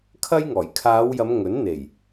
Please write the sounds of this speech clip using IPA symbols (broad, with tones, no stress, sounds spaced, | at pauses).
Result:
kʰ ɐ˥ j ŋ ɔː˨˩ j kʰ aː˨˧ w j ɐ˨˧ m ŋ ɵ˨˥ n n̪ e˨˩ j